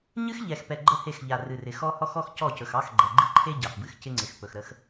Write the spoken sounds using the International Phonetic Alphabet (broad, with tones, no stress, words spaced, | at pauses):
ɲɨ˦xʎɛ˨xpɛ˨ ɡ͡ǃə˦he˦˨xʎa˨ rɨ˨rɪ˨xɔ˦ hɔ˦xɔ˦xcɔ˦˨cɵ˨x ɑ˦xɡ͡ǃɛ˨ ɡ͡ǃɨ˦ǃʰe˦ ɟɑ˨xbɨ˦xcɪ˦ŋ͡ǀɪ˨x pɵ˨xɾə˦x